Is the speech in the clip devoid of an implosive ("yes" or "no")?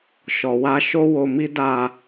yes